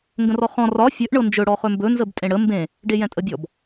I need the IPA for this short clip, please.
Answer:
ŋ ɡ ə̃ r ɔ χ ɔ̃ r ɒ fʲ ɵ ʔ ɳ ɤ n d͡ʒ ɵ ɽ ɔ χ ɵ m b ɵ n z ə b tʼ ẽ ɽ ə m b ẽ | ɖ e j ɛ̃ tʼ ə bʲ ɔ b

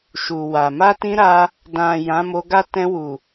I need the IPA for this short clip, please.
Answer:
ʃ u˨ w a˨ m a˧ t ĩ˧ ɾ a˧ | d ã˨ j ã˨˦ m o˧ ɡ a˦ t ɛ̃˧ w u˨

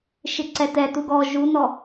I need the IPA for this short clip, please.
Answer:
ʃ ɪ ǀ ɛ t ɛ t u ɡ ɔ ʒ u n ɔ

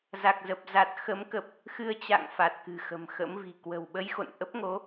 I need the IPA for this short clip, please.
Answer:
z a˨˩ k̚ z ə˨˩ p̚ z a˨˩ t̚ x ə˨˦ m k ə˨˩ p̚ | x ɨ˧ ə̯ t͡ɕ a̰˧˨ ŋ f a˨˩ t̚ k ɨ̤˨˩ x ə̤˨˩ m x ə̰˧˥ m v i̤˨˩ k w ə̤˨˩ w ɓ ə˧ j x o̰˧˨ n ʔ ə˦˥ p̚ ŋ o˨˦

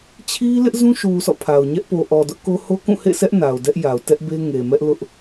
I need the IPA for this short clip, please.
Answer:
t͡ɕʰ i˦ l ɪ˦ ʔ z ũ˦ ʃ u˨ s ɔ̰˦˨ pʰ a˨ ʊ̯ ɲ ɛ˦ ʔ p o˨ ʔ ɔ˨ d ʊ˦ ʔ k o˦ h o˦ k ũ˦˨ h ḛ˦˨ sʰ ɛ˦ ʔ n a˨ ʊ̯ d ɛ˦ ʔ j a˨ ʊ̯ t ɛ˦ ʔ b e˦ ŋ e˨ m ɛ˦ ʔ l ʊ˦ ʔ

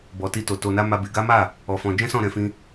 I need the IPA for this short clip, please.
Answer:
b ɔ˧ t i˦ t o˧ t o˧ n a˦ m a˦ b e˧ ɡ a˦ m a˦˨ | ɔ˧ f ɔ̃˧ d͡ʒ ɛ̃˦ s ɔ̃˦˨ ɾ ɛ̃˧ f ĩ˧

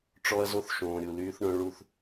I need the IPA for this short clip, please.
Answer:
ʈ͡ʂ ɔ˦ ɐ̯ z o˦ θ ʃ õː˨ ɾʲ u˨ l yː˦ θ ɳ œ̃˦ ɭ u˦˨ θ

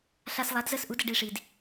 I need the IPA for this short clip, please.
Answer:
ɬ a˧ s lˠ a˩˥ d z ə˥˩ s ʔ u˩˥ d ə˥˩ ɖ i˥˩ ʂ i˩ d

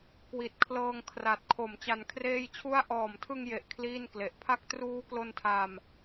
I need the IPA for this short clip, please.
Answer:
k w i˨˩ t̚ kʰ l ɤː˧ ŋ kʰ r a˨˩ t̚ kʰ o˨˩ m t͡ɕ a˧ n kʰ r eː˥˩ j t͡ɕʰ u˥˩ a̯ ʔ ɔː˨˩ m tʰ ɯ˧ ŋ j e˨˩ ʔ kʰ l iː˥˩ n k l e˨˩ ʔ pʰ a˥˩ k̚ t r uː˦˥ k l o˧ n tʰ aː˧ m

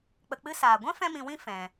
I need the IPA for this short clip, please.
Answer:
k͡p ə˧ k͡p ɨ˧ s aː˨ ɡʷ ɛ̃˦ f ɛ̃˦ m ĩ˧ w ĩ˦ f ɛ̃˧

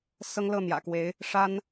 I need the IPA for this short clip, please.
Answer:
s ɤ˥ ŋ l ɤ˥˩ n̪ j ä̰˨˩ k w e˧˥ ɪ̯ | ʂ a˥ n

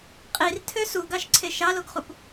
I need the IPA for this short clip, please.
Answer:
qʼ i r tʰ ø s u ɡ ɑ ʃ ǀʰ e ʃ ɑ l o ɡ χ u p

